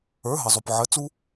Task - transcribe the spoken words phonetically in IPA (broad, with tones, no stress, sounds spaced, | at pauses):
ə˞˩˥ ɦ ə˩ zˤ o˩ p ʕ ə˩˥ t͡s u˥